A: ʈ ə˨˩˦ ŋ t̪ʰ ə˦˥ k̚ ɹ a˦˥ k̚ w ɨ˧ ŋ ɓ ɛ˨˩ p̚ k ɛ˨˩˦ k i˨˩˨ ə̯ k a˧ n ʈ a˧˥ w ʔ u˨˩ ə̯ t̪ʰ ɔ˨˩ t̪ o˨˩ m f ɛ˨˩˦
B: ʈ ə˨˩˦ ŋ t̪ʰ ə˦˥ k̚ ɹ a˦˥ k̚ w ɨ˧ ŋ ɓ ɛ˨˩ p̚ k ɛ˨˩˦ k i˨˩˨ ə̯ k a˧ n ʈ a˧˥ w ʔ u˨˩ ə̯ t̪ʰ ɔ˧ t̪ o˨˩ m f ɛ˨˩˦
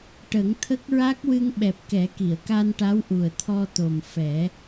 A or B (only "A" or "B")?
B